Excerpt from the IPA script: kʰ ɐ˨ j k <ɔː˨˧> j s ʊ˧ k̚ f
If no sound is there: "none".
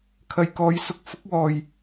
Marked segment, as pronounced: ɔː˨˧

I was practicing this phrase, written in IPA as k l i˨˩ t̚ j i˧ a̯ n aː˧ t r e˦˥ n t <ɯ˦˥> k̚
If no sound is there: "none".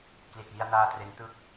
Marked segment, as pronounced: ɯ˦˥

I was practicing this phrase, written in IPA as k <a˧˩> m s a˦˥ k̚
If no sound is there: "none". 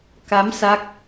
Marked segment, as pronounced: a˨˦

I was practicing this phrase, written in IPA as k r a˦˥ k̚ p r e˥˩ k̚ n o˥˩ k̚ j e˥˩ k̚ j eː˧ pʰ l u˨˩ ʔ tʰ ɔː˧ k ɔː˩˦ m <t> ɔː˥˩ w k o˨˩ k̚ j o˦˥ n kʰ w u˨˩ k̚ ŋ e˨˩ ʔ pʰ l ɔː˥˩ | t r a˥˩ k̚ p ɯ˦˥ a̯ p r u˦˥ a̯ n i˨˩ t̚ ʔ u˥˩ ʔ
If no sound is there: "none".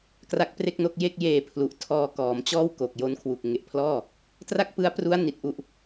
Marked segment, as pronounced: t͡ɕ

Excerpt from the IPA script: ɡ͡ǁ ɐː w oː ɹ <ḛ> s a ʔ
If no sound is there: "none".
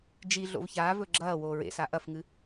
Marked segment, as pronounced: ḛ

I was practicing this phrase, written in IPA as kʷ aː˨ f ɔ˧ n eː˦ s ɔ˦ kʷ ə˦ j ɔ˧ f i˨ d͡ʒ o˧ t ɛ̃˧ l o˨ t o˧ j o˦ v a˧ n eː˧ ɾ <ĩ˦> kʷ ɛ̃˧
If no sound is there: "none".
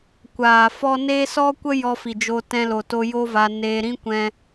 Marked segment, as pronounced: ĩ˦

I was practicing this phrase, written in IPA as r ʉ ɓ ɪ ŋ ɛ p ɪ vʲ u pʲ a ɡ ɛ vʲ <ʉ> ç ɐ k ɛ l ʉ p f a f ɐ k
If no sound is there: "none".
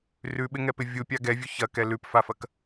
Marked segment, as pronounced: ʉ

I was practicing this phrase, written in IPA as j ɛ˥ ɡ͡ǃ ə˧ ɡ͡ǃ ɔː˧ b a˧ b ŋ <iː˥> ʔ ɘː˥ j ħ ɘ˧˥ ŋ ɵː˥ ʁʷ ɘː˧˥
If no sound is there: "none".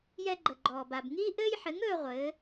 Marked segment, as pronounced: iː˥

